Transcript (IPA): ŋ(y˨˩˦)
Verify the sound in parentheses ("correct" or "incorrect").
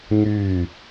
incorrect